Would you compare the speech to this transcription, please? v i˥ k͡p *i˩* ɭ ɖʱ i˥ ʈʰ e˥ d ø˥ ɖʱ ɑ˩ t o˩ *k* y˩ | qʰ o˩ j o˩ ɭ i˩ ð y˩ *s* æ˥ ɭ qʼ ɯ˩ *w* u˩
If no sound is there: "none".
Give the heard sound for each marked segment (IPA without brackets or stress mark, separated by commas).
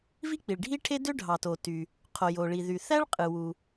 i˩, t, θ, w